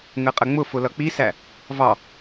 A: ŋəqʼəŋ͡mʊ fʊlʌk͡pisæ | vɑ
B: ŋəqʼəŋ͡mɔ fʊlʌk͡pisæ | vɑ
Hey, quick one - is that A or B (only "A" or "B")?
A